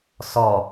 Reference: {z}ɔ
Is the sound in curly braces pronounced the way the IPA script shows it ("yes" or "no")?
no